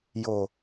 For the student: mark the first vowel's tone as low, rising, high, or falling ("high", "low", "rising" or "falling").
low